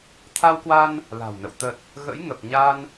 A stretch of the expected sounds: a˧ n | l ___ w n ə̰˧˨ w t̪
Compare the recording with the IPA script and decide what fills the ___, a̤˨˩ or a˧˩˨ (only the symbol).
a̤˨˩